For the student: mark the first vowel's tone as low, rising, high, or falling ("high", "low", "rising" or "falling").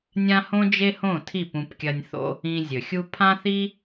high